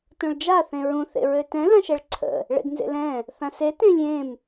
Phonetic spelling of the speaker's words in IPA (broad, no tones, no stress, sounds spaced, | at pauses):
t õ ɭ d͡ʒ a θ ẽ ɹ ũ θ ḛ ɹ ø t ɛ̃ l ã ʃ ɛ ɭ ǀʰ ə̰ | ɭ ḛ d n z ḛ l ɛ̃ | θ ã s e t ẽ lʲ ẽ m